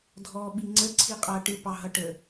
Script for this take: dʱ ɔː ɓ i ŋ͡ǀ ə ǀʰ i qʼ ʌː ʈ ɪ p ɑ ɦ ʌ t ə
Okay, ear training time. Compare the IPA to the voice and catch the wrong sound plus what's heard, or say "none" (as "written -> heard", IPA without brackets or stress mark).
t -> ʈ